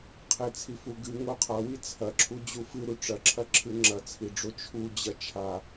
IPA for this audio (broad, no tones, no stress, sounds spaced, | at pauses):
qʰ e t͡sʰ i f u ɡ ɨ ŋ o qʰ a w i t͡sʰ ɐ ǁʰ u d͡ʑ u f ɨ ɾ u ʈ͡ʂ ɐ ǁʰ ɐ ǁʰ ɨ ŋ͡ǁ ɐ t͡sʰ i ɖ͡ʐ o t͡ʃʰ u d͡ʑ ɐ t͡ʃʰ a